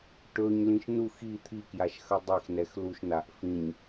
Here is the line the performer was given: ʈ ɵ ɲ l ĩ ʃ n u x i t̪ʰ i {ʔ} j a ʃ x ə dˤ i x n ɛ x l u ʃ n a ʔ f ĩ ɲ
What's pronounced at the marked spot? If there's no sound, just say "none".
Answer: k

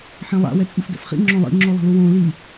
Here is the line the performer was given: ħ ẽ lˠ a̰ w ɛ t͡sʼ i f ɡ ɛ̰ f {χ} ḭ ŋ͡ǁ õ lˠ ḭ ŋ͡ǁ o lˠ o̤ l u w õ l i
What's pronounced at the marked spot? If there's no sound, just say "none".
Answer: χ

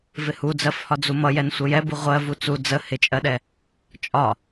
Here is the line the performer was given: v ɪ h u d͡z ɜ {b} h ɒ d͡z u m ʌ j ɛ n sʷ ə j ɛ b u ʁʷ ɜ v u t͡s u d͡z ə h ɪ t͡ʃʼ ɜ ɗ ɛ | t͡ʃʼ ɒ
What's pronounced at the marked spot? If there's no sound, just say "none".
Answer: f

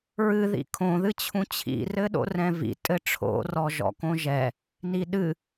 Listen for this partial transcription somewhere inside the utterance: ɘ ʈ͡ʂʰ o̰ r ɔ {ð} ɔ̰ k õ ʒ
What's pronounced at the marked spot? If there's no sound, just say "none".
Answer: ʒ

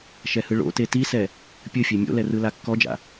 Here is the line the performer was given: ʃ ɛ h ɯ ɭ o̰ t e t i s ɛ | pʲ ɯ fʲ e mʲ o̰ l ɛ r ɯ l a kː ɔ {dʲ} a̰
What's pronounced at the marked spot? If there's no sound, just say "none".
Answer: d͡ʒ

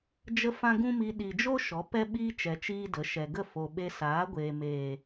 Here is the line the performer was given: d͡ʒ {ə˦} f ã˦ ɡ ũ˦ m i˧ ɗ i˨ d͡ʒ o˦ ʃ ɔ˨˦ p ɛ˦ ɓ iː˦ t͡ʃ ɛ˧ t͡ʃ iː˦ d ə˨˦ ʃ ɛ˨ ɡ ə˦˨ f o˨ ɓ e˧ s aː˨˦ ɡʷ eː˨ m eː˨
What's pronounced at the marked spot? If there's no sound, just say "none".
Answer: ə˦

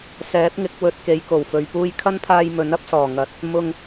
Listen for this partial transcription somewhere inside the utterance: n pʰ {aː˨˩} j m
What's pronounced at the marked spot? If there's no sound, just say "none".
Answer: aː˧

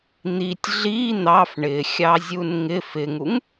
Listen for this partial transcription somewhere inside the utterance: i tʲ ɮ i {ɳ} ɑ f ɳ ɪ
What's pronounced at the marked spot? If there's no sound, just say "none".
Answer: n̪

